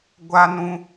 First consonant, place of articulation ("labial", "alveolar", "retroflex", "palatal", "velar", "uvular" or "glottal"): velar